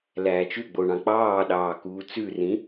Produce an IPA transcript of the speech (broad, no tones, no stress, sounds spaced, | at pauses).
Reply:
l æː t͡ʃ ʉ ɡ͡b o ɳ ɑ̃ k͡p ɑː ɗ ɑː k uː t͡s ʉ r ĩ